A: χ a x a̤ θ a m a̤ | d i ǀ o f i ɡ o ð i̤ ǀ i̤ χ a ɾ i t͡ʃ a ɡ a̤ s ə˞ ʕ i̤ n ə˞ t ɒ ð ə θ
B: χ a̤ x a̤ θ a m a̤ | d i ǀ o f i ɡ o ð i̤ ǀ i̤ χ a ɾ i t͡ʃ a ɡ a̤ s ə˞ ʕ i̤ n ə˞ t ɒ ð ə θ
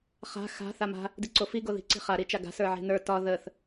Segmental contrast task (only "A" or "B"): B